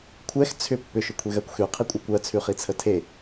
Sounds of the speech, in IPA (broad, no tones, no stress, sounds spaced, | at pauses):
kʷʰ ɛ x t͡sʰ ʏ pː ʏ ʃ ʏ kʷʰ e ɣ ɜ kʷ x ʉ qʰ i kʷʼ ɜ kʷ ɜ t͡sʰ ʉ χ i t͡sʰ ə tʰ e